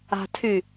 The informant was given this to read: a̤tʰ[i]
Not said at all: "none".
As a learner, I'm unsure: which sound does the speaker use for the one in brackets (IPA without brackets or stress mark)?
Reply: y